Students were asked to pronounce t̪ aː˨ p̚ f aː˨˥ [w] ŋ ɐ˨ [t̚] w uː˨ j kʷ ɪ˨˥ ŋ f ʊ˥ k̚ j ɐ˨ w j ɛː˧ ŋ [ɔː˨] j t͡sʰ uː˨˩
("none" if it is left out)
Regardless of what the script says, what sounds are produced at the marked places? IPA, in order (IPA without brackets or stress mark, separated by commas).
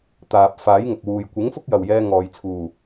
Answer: j, k̚, ɔː˨